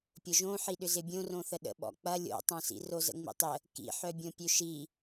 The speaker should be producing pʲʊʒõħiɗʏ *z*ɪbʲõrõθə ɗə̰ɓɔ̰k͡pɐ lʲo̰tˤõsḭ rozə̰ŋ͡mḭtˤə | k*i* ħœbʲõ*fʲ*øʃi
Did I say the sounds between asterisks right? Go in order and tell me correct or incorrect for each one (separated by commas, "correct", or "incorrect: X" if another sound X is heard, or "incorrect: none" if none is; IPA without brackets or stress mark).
correct, incorrect: ḭ, incorrect: pʲ